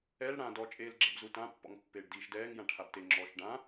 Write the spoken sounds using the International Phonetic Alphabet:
ɛl ɽã dɔt͡ʃʼeːl ɡ͡ǁɛ̰bzutãpːɔ̰ŋ pːeːɖdiːʃdɛːŋ jãʈʰabte ŋ͡ǁɔːʃɖã

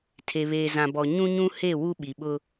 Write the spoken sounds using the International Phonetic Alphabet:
tʰe˨βeː˨zã˨bɔ˨ ɲũ˦ɲũ˦he˦˨ wu˦ɓi˨ɓʊ˦

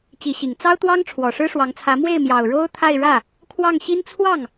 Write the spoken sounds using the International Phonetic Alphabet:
t͡ɕi˧˥ɕi˨˩ŋ t͡sɑ˥ʊ̯t̪wɑ˥ŋ ʈ͡ʂʰwɔ˨˩ʂɻ̩˥ʂwɑ˧˥ŋt͡sʰä˧˥ mwe˥˩ɪ̯ mjɑ˨˩ʊ̯ ɻo˥ʊ̯ t̪ʰa˥˧ɪ̯ ɻä˥˩ | kʰwɑ˥˩ŋɕi˥n t͡sʰwɑ˥˩ŋ

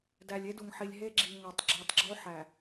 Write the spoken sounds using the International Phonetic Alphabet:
dæ˨lʲe˦du˨ŋħi˨lʲ ɦe˦ɡ͡ǁi˨ ŋæ˨tˤɡ͡ǁi˨tˤ ɡ͡ǁo˦ħæ˨

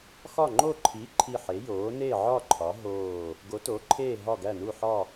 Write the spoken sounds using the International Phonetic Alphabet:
xɒ˦˨ŋ͡ǃo˦˨ǃʰi˨˥ ǃʰi˦˨ħe˨˥joː˨˥ ne˦˨ʕɒ˦˨ ǃʰɒ˨˥ɦoː˦˨ | ɡo˨˥to˨˥ǃʰeː˦˨ ɦɒ˦˨ɡæ˦˨nu˦˨ ħɒ˦˨

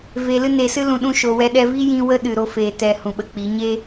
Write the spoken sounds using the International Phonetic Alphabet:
ve˧ lɨ˦ne˧sɨ˦ lũ˧ɗũ˦ ʃo˧wɛ˦ɗɛ˦ vi˦jĩ˧ wə˦ ɗɨ˨ɾo˧ feː˨ tɛ˨ hũ˨ɓə˧k͡pi˨˦ ɲe˦

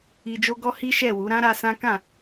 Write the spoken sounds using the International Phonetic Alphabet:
i˧ d͡ʒo˦ɡɔ˦ hi˦ʃɛ˦˨wu˨˦ ɾã˦ɾa˧ sã˦ kã˦˨

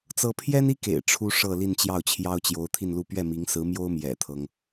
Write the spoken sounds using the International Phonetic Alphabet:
t͡sɤ˥ pʰjɛ˥ni˥kḛ˨˩ɪ̯ ʈ͡ʂʰu˥ʂɤ˥˧ li˥˧nt͡ɕjɑ˥˩ʊ̯t͡ɕʰjɑ˥ʊ̯ t͡ɕjo˧˥ʊ̯t̪ʰi˥˧nlu˥˧ pɥɛ˥˩mi˧˥ŋ sɹ̩˧˥mjo˥ʊ̯ mjɛ̰˨˩t̪ʰɤ˦ŋ

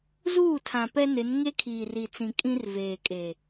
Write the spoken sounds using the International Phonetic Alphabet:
zuː˦˨tʰã˨ pɛ˦ nɪ˨˦n ŋe˦kʰiː˨ ri˨t͡sĩ˨ kʼĩ˦rveː˨kʼeː˨

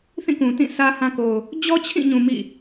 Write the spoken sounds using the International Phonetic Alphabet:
θĩ˦˨kũ˨tĩ˦˨ sä˦hã˦ ko˨ʊ̯ | d͡ʑɔ˦t͡ɕʰĩ˦˨ɲũ˨ mḭ˦˨

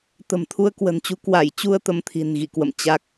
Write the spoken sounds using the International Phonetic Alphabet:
t̪ə̤˨˩mt̪ʰu˧ə̯ kwə̤˨˩nt͡ɕu˨˦ kwa˧˩jt͡ɕu˧ə̯ t̪ə˨˦mt̪ʰi̤˨˩n ɣḭ˧˨kwə̰˧˨m t͡ɕa˦˥k̚

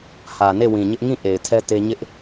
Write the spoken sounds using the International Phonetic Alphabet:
hä˨ne˦˨wĩ˨ɲɪ˦ʔ ŋĩ˦˨ ʔe˨ɪ̯tʰɛ˦ te˦ ɲɪ˦ʔ

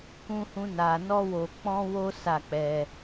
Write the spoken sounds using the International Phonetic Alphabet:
kũ˦hũ˦na˧ nɔ˦wo˧ k͡pɔ̃˦wo˦ sa˦˨k͡pɛ˧

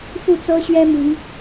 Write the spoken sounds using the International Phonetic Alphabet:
fu˥˨t͡sɤ˦ɕɥɛ˦ mi˨˦ŋ

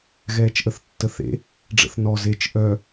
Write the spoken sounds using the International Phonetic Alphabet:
ɣɛːt͡ʃʔəθtːəθḛ | ɖ͡ʐə̰θnɔ zet͡ʃ ʔœ

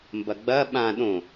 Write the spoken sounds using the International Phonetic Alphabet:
mbɐɡ͡bɐ ɓã ɗõ

